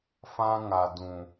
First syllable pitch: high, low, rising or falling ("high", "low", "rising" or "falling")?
high